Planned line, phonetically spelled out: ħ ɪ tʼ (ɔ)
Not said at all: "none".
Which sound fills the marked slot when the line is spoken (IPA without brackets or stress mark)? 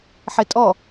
ɔ